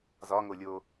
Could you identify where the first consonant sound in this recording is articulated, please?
alveolar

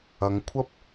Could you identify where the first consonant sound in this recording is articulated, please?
velar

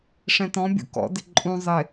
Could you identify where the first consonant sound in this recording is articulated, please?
retroflex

